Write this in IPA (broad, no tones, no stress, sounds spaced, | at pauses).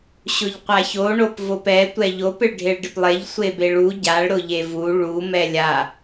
ɕ ʊ ʎ qʷ a ç o ɳ o p v o p ɛ tʷ ɛ ʎ o p ɪ ɭ ɖʱ e ɭ ɖ ɪ p lˠ e ʎ sʷ e b e ɭ u ɟ a ɭ ɾ ʊ ʎ e v u ɭ u m ɛ lʲ a